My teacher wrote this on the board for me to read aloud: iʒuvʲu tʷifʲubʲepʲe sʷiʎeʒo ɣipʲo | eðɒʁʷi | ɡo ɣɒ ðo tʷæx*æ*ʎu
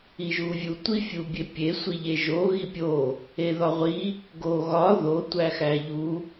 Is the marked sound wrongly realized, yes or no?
no